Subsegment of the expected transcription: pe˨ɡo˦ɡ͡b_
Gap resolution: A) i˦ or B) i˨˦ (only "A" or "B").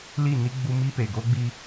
A